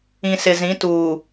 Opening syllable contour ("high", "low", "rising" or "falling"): low